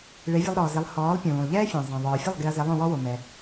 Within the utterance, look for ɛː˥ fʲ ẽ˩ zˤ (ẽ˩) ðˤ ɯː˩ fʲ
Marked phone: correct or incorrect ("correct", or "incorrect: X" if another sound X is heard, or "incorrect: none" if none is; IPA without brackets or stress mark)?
incorrect: ɛ̃˩